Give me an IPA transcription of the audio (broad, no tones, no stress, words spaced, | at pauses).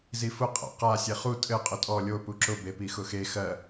zifʊ qʼa̰qa sʲeχu tʼɘ qʼʊtʼɔ lʲo puǁʊ bepixʊxe xɜ